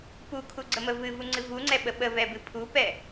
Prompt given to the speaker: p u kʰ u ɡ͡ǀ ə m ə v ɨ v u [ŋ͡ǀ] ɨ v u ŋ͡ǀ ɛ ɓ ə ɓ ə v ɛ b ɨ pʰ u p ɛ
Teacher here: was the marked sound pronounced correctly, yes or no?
yes